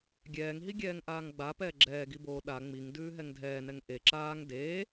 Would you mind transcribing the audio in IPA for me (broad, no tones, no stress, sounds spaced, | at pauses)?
ɡʲ ɛː ŋ ɦ i ɡʲ ɛː ŋ ʔ aː ŋ ɡ͡b a p ɛː ɡ͡ǁ ɛː ɡ i b oː ɗ a ŋ͡m i ŋ d ʉː ɦ ɛ ŋ dʱ ɛː n ɛ ŋ ʔ e ǁ aː ŋ d eː